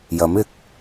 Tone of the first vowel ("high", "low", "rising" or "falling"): rising